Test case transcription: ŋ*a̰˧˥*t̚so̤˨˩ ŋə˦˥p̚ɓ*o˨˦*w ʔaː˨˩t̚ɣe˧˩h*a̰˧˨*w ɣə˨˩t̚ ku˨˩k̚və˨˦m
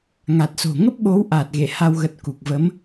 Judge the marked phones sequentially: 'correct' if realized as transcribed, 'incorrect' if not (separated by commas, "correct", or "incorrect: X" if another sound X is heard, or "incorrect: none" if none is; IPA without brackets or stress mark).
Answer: incorrect: a˨˩, correct, incorrect: a˧